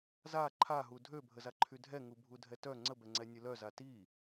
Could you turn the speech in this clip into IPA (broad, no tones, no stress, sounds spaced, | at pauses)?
z a ǃʰ a ɦ u dʱ ø bʱ ə z a ǃʰ y dʱ ɛ ŋ u bʱ u dʱ ɛ t œ ŋ͡ǀ ə b ɛ ŋ͡ǀ ɛ nʲ ə l œ z a t i